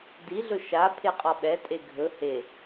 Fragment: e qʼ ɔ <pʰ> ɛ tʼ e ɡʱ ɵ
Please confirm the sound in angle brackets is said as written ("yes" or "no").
no